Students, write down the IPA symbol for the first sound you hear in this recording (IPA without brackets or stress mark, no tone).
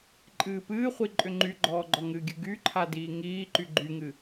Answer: ǃʼ